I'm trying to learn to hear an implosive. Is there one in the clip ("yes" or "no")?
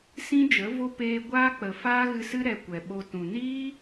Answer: yes